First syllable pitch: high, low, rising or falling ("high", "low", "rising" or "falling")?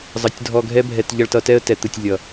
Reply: low